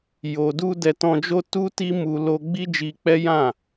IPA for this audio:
j o˨ d u˧ d ɛ˧ t ɔ̃˧ d͡ʒ o˦ t u˦ t i˦ m u˧ l o˧ ɡ͡b i˦ d͡ʒ i˧ k͡p ɛ˦ j ã˦˨

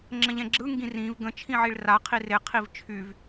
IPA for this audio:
ŋ͡ǁ ə̃ ʎ ɛ̃ ɡ͡ǁ ɯ ŋ ɡ ĩ r ĩ v ɡ ə̃ t͡ʃʰ ĩ ʕ i ɭ r a qʰ i r e qʰ i v t͡ʃʰ y v

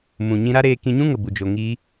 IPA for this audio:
m ũ˨ ɲ ĩ˧ ɾ a˦ ɾ eː˧ k ĩ˧ ɲ ũ˦ ŋ ə˨ b u˨ d͡ʒ o˨ ŋ iː˦

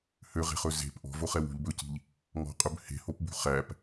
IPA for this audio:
h ø ʁ e̤ χ ɵ z e̤ p ʔ ɔ̤ v o χ ɛ w ṳ ʎ b ɵ c i̤ ʎ | ŋ ɔ̤ qʼ ɵ b h e̤ h o p b ṳ χ æ p

